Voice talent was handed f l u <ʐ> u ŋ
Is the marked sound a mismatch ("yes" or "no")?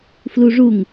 no